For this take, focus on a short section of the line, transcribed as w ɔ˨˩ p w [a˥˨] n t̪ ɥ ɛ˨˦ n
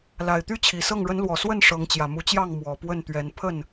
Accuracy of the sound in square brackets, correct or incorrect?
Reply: incorrect